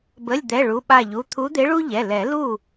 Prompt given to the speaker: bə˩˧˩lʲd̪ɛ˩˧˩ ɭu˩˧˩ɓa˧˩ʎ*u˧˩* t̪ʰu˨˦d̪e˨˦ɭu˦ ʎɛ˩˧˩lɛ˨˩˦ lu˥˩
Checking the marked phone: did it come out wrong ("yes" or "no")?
yes